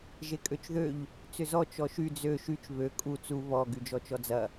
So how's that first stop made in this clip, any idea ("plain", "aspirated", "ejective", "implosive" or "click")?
ejective